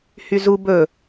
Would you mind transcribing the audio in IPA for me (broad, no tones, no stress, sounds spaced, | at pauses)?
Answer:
h y z u b ɵ